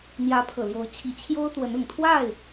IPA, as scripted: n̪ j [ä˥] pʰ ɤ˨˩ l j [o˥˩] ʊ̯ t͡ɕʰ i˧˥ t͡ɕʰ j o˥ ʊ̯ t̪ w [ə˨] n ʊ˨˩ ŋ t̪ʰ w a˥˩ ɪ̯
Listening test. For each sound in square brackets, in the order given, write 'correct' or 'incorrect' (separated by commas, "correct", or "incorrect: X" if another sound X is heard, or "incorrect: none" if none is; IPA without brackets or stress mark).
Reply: incorrect: ä˧˥, incorrect: o˧˥, incorrect: ə˧˥